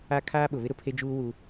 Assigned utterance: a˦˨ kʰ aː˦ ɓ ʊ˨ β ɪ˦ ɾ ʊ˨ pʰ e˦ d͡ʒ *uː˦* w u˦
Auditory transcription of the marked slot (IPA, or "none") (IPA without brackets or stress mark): uː˦